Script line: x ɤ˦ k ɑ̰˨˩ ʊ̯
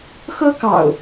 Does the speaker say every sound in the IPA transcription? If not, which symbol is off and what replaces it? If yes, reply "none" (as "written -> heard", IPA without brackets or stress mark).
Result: none